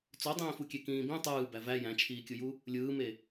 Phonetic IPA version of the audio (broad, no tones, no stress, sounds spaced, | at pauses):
t͡s o dˤ ĩː f u kʲ e k ĩː b ĩ tˤ ɯː b æ v æ j æ̃ t͡ʃʰ iː kʲ ɯ j u | lʲ ɯː m e